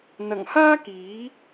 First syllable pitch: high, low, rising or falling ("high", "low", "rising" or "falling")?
low